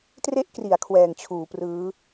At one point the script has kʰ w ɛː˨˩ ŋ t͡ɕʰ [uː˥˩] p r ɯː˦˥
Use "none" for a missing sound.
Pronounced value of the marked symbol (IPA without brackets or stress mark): uː˩˦